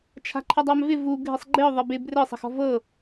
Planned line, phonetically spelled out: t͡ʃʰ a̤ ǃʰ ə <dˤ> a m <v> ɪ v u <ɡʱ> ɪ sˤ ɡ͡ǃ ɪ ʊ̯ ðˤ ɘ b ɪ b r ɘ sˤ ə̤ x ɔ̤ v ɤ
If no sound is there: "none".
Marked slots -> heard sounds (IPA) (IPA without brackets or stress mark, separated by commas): dˤ, v, ɡʱ